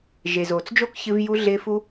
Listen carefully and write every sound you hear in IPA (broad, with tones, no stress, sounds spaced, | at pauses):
ʒ e˩ z oː˩ t͡s d͡ʒ o˥ k ç ɨ˧ v j u˧ ɮ ɪː˧ f u˧